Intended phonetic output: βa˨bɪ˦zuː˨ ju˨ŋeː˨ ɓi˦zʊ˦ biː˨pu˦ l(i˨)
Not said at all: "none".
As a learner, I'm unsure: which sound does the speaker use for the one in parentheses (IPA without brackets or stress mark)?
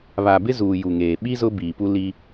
i˦